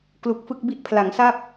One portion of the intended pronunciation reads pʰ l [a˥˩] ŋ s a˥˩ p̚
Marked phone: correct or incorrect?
incorrect: a˩˦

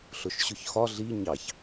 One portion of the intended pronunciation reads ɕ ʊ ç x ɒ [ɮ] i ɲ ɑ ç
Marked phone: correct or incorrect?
correct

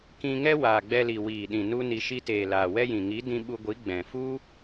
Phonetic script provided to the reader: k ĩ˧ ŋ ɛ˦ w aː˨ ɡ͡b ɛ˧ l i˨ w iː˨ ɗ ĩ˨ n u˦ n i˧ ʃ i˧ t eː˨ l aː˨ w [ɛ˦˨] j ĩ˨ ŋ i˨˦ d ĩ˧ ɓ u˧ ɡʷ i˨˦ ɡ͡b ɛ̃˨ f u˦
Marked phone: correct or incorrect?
incorrect: ɛ˦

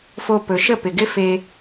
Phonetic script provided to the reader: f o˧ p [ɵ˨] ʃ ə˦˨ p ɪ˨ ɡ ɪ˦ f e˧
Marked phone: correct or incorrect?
correct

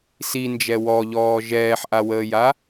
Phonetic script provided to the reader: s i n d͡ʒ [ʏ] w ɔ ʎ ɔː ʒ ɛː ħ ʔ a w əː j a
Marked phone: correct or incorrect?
incorrect: ɛ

